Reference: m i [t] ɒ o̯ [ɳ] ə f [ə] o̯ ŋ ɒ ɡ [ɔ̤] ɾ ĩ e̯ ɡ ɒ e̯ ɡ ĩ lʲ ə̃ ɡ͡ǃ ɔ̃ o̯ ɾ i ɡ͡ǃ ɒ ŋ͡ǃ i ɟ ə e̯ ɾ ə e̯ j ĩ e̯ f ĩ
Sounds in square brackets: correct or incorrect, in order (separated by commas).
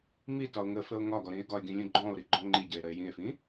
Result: correct, incorrect, correct, incorrect